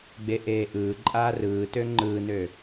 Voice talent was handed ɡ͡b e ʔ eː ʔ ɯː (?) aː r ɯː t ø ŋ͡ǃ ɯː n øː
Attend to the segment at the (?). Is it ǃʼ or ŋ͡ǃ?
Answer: ǃʼ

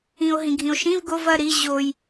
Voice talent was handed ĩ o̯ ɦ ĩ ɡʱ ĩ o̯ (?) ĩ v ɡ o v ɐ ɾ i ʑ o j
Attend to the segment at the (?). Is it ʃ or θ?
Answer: ʃ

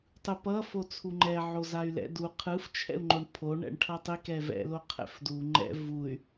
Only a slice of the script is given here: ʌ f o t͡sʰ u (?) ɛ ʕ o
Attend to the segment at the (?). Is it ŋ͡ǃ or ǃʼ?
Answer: ŋ͡ǃ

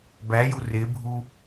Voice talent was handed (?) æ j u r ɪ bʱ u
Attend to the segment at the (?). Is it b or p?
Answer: b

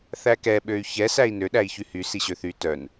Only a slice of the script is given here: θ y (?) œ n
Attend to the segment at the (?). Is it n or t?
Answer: t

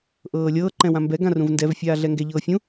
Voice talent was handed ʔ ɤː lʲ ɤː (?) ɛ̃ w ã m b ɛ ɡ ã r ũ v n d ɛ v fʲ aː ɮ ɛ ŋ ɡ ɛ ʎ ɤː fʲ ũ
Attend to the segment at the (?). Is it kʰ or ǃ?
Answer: ǃ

